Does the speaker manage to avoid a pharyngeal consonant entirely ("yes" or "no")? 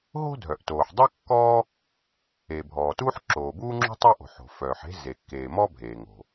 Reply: no